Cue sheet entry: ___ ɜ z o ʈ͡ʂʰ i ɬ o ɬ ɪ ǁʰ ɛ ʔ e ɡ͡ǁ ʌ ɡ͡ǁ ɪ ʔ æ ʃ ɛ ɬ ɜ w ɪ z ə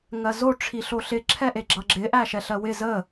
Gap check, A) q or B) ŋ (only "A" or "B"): B